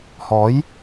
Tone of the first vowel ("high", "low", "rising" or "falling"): rising